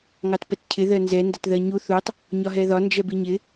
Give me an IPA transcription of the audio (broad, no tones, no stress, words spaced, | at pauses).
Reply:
ŋɑtpɛtcʰɪ ðɜnzɛ ndʌtðɜɲu θutˤ | ɲɒɦɛðɒ nd͡ʒɛbiɲɪ